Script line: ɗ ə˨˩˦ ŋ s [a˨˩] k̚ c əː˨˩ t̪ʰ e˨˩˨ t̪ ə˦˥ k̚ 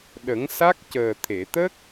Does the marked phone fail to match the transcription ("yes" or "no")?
yes